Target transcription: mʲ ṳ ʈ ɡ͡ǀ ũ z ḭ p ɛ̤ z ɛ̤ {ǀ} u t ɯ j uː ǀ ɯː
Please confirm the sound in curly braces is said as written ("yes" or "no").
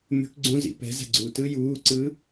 no